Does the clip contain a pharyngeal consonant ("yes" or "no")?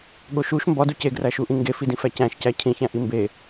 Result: no